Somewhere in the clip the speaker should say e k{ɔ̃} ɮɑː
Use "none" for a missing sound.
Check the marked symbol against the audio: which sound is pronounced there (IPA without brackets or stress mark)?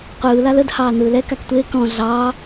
ɔ̃